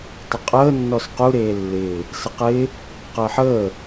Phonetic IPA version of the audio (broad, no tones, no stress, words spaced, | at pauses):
tˤəqʼəː nːɔsqu ɾeːlːɪː | səqɪː | qəːħəː